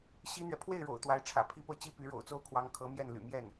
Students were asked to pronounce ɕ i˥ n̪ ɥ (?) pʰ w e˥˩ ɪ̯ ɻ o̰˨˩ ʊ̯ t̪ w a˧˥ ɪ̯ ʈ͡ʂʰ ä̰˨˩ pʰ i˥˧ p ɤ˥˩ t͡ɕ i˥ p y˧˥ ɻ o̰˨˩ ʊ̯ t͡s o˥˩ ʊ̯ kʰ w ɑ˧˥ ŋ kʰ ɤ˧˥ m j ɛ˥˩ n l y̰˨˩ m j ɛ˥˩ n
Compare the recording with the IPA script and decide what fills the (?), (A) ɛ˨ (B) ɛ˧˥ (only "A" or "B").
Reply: A